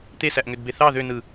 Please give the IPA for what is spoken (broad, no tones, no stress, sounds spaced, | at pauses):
t̪ e s æ ʔ ŋ ø d b e θ ɑ ð ø n ɯ